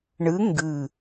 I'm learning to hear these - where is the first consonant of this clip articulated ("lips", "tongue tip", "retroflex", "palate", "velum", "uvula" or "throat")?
retroflex